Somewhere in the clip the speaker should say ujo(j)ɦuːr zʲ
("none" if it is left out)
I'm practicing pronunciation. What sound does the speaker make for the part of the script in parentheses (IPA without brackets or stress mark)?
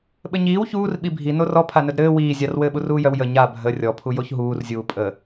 ç